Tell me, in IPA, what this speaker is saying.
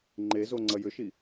ŋ͡ǃ e z o ŋ͡ǀ ɐ j ʏ ʃ i

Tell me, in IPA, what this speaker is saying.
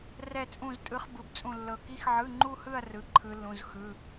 r ɛ˥˧ t͡sʼ ũ˥˧ z tʼ ɯ˦˥ χ b ɯ˧˥˧ b t͡sʼ ũ˥˧ lː ɤ˥˧ k i˦˥ x ʕ ɯ˧˥˧ ŋ͡ǃ u˥˧ h ɯ˥˧ ɐ̯ r ɯ˧˥˧ ǃʰ ɯ˦˥ lː ũ˧˥˧ z x ɯ˧˥˧

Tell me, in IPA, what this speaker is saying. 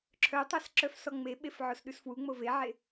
ǁʰ œ tˤ æ s ǁ œ f s ɔ ŋ͡m e ɓ e f ʕ o s ɗ ʉ s f w u ŋ͡m o v e ʕ e

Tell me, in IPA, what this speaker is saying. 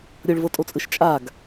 ɾʲ ɤ ɭ v ɤ tʼ o t͡sʼ ɯ ʃ t͡ʃʼ a ɡ

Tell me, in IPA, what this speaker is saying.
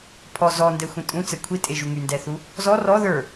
pʰ ɔ z ɔ n d ɛ xʷ ĩ tʼ ũ t͡s ɛ kʷʰ i tʼ e ʒ u ŋ y n d ɛ θ u | z ɔ r ɔ ð ə˞

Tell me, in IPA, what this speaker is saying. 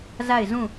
z a˦˨ ɪ̯ z ũ˦˨

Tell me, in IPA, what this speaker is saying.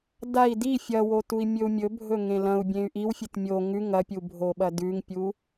d a i̯ d i fʲ ɐ w o t u i̯ mʲ ɵ u̯ mʲ ɵ bʱ ɵ ŋ ẽ l ɐ̃ u̯ bʲ ẽ y̯ ʔ i w fʲ ɨ t mʲ o ŋ ʉ ŋ ɐ pʲ u bʱ o ɓ ɐ d ʉ ŋ pʲ u

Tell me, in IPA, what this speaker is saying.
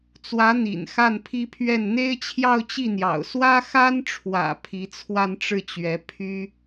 t͡s w ä˧˥ n̪ ḭ˨˩ n x a˥˩ n pʰ i˥ pʰ ɥ ɛ˥˩ n n̪ e˥ ɪ̯ t͡ɕʰ j ɑ˥˧ ʊ̯ t͡ɕ i˥˩ n̪ j ɑ̰˨˩ ʊ̯ s w ä˥ x a˥ n ʈ͡ʂʰ w ä̰˨˩ pʰ i˧˥ t͡sʰ w a˥˧ n ʈ͡ʂ ɻ̩˥˩ t͡ɕ ɥ ɛ˧˥ pʰ y˥

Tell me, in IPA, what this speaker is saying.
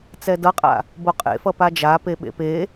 t͡s ɛ d ʌ qʼ a̰ | b o qʼ ḛ f ʌ p a d͡ʒ a p e ɓ ḛ p e

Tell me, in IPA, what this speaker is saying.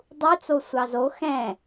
dˤ u t͡s o sʷ ɑ z o x ɛ̃

